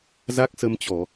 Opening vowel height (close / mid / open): open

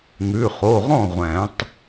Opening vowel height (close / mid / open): close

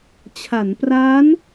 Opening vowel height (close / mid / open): open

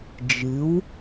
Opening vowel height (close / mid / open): close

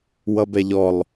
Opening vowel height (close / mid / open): mid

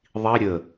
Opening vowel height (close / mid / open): close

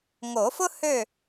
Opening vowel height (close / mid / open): mid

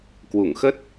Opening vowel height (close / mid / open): close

